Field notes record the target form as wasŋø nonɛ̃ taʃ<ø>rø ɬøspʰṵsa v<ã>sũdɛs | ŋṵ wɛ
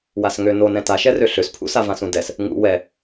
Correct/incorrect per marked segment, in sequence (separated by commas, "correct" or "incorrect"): incorrect, correct